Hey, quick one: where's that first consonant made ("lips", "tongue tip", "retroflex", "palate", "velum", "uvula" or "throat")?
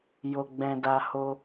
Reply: palate